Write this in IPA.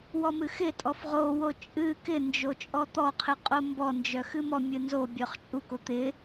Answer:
w ɔ m ɨ x ɪ tʼ ɔ f ʁ o w o t͡ʃʼ ɨ k ɪ n d͡ʒ o t͡ʃʼ ɔ t̪ ɔ qʰ ɨ qʼ o m b ɔ n d͡ʒ œ x ɨ m ɔ mʲ ɨ n z o bʲ œ χ t͡ʃʼ u k o t̪ ɪ

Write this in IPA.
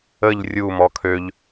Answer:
ə ʎ rʲ u m ɔ kʰ ø ʎ

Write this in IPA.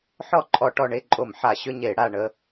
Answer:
ħ ɔ˥˧ ǃʼ ɔ˧˩˧ ʈ ɔ˧ ɳ e˥˧ ǃʼ o˧˩˧ m ħ a˧˩˧ ɕ ʏ˥˧ ɲ e˧˩˧ ɽ a˥˧ ɳ ə˥˧

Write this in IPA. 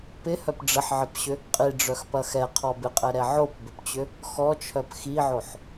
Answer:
p ɪ h œ p ɖ͡ʐ ə ħ ʕ ɪ p ɕ ʏ | qʼ i ɖ͡ʐ œ x p ɐ x ɛ qʰ ɔ b ɪ qʼ ɛ ɾ ɛ ʕ o p b ʏ p t͡ɕ ʏ | x ɔ t͡ʃʰ œ p x i ʕ o ħ

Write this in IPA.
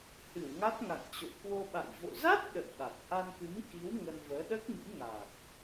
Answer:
h ɨ˧˩ w ŋ a˦˥ t̚ ŋ a̰˧˨ ŋ t͡ɕ o̰˧˨ k w o˧ ɓ a̰˧˨ j v o̰˧˨ z a˦˥ t̚ ɗ ə̰˧˨ j ɓ a˨˩ t̚ ʔ a˧ n k ɨ˨˦ m k i˨˦ w ŋ ə˧ n v əː˨˦ ɗ əː˦˥ k̚ m ḭ˧˥ ŋ aː˨˩ k̚

